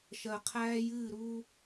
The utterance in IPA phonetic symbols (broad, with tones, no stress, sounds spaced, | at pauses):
ʃ ɜ˨ qʰ æː˦ j ɨː˦˨ ɾ uː˦